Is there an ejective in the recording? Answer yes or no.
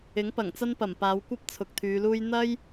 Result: no